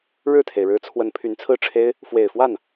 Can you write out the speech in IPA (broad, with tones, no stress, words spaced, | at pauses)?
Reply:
ɻɻ̩˥˩t̪ʰe˩ɪ̯ɻɻ̩˧˥t͡sʰwə˧˥n pʰy˧˥nt͡sʰɹ̩˥˩ʈ͡ʂʰe˥ɪ̯ | fwe˨˩ɪ̯fwa˥˩n